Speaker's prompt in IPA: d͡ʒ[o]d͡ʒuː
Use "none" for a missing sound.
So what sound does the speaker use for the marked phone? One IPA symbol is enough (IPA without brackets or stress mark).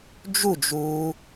u